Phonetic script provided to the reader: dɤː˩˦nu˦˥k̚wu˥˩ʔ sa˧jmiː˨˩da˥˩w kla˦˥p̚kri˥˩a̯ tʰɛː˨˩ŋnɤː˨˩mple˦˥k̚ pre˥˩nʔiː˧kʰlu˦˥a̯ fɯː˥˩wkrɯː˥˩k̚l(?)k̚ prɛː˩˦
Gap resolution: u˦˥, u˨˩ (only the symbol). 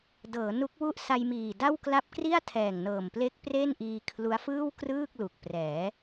u˨˩